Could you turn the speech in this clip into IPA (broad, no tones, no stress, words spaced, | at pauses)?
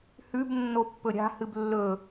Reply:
hʉb nːopːɵɾʲa̤ hɨblːɵ